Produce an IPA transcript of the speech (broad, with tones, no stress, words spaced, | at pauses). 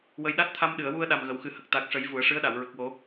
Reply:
wə˧j ɗa˦˥t̚t̪ʰa˧mɗɨ˨˩˨ə̯ wu˧ə̯ ɗa˨˩mɣə˨˩˨wxɨ˨˩˦ hə˨˩k̚t̪a˨˩k̚ʂə˨˩˦j vu˨˩˦ə̯ ʂɨ˧˥ə̯ɗa˨˩˨w ɹə˨˩k̚wo˨˩˦